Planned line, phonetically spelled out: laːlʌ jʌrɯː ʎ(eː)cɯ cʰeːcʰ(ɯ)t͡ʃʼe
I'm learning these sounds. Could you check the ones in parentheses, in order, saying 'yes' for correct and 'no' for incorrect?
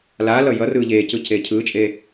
yes, no

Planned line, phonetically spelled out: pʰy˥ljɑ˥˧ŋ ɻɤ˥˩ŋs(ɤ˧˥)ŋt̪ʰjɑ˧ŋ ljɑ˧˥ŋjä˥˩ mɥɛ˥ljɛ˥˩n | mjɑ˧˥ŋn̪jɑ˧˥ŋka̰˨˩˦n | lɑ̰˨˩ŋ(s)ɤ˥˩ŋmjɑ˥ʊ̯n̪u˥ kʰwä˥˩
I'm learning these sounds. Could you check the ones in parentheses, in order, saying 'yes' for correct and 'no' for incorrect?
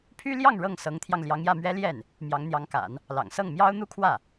yes, yes

